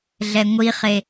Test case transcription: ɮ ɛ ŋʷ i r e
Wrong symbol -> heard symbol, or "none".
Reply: r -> χ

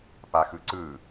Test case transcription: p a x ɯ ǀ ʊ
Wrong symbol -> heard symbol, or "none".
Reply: ʊ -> ɯ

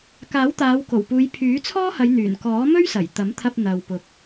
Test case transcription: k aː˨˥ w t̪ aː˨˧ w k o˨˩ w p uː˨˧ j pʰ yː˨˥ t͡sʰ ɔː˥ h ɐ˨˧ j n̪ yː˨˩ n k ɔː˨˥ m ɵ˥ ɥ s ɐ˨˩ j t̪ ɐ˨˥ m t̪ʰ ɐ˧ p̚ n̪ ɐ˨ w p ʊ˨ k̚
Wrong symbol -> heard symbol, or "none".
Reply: none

